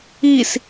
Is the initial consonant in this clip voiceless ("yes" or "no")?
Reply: yes